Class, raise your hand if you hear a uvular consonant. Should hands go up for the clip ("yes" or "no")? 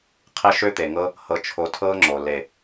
yes